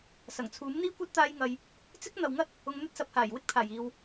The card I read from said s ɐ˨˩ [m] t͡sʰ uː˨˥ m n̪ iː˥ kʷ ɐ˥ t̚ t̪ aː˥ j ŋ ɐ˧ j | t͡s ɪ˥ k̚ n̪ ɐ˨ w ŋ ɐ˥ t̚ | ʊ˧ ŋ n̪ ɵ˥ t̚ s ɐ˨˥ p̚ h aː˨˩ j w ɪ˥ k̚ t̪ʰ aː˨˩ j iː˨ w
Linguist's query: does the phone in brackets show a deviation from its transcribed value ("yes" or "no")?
yes